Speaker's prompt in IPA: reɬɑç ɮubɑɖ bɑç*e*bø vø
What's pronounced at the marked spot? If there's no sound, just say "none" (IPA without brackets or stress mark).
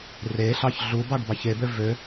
e